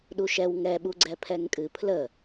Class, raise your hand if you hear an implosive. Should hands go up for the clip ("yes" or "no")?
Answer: yes